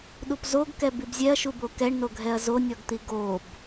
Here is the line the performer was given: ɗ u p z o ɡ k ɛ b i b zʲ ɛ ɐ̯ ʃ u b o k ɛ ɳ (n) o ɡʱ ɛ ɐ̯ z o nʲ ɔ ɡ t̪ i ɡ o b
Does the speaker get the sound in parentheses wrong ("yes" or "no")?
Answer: no